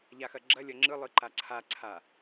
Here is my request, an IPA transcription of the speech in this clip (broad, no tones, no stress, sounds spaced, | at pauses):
ʎ a x ɐ ɡ͡ǁ ɐ lʲ ɐ ŋ͡ǁ ɯ lˠ ɯ ǃ a ǀʰ a ǀʰ a